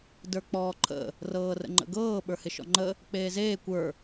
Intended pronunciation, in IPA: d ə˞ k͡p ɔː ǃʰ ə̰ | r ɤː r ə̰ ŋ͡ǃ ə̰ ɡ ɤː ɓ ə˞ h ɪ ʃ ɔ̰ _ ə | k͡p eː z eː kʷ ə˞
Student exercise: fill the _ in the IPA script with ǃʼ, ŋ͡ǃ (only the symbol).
ŋ͡ǃ